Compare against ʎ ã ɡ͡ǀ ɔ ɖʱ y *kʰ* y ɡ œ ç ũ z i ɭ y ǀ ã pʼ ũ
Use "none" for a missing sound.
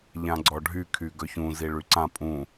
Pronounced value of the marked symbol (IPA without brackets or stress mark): kʰ